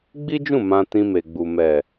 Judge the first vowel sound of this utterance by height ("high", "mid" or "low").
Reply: high